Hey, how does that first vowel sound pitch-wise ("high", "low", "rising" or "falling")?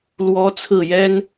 high